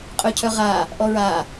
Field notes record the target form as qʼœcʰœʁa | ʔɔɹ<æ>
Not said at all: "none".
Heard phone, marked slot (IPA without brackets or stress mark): a